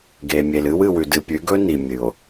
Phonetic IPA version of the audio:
ɡe˨mʲe˨lɨ˦w ɨ˨wʉ˨dɨ˨ pʲʉ˨˦ɡɵ˦ ni˨mʲɨ˨o̯

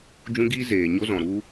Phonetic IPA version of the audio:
d͡ʒũ˦ɡiː˦ zeː˨ɲo˦zɔ̃˨ ɾu˦

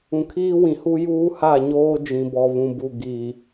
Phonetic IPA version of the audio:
ũ˨kʰiː˦wĩ˨hu˦ juː˦ha˦˨ ɲoː˦ d͡ʒĩ˨bɔ˨βũ˨bu˨ ɡi˨

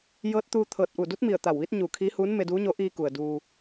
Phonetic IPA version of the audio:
jɤː˧˥t̚ t̪uː˧ t̪ʰɤː˧˩t̚ ʔu˧˩du˧˥t̚mi˧˩ə̯ t̪a˧˩wʋiː˧˥t̚ ɲuː˧˩kʰiː˧˥huː˧˥n me˧duː˧˥ɲo˧˥ ʔiː˧ku˩ə̯ duː˧

